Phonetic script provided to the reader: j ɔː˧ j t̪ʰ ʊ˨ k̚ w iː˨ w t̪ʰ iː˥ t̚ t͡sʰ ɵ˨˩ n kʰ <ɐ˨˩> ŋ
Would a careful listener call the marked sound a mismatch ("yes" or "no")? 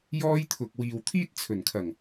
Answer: no